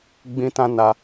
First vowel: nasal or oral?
nasal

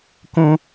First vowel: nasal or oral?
nasal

